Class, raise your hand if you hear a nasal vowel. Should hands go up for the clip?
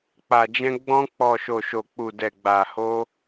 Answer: yes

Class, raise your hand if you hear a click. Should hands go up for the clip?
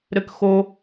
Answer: no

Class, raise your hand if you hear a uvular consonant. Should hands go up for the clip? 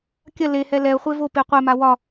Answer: yes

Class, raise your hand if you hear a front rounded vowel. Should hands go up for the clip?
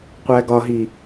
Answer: no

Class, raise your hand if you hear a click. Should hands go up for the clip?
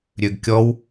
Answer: no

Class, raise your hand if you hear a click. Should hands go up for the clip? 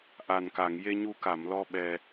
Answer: no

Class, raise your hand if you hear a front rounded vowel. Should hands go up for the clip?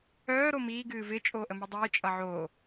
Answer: yes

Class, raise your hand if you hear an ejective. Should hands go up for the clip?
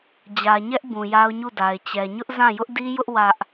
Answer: no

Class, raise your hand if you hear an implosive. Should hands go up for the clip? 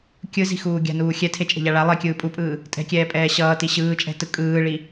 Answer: no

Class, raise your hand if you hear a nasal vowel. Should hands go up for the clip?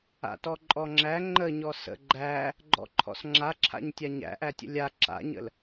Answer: no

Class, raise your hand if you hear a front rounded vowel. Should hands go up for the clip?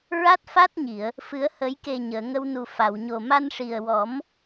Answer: no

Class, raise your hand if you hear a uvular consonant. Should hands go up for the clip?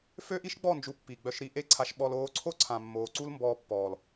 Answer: no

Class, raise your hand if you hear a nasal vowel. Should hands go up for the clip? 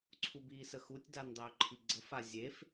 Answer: no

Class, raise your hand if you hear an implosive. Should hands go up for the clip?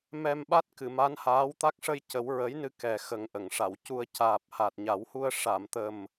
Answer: yes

